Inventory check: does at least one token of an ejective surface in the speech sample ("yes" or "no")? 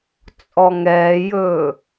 yes